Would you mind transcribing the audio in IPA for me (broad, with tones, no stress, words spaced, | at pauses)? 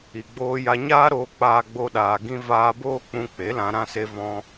i˨ɡ͡boː˧ja˧ ɲaː˦ɾoː˧ k͡paː˦ɡ͡bo˦ɗaː˧ ɡĩ˧vaː˧ boː˦k͡pũ˧k͡pe˨˦lã˧ ɾã˦se˦vɔ̃˦